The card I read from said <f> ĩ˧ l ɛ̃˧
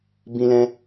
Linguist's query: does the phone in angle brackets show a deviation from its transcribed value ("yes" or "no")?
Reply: yes